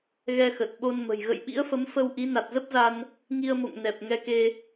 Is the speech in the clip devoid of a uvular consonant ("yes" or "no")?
yes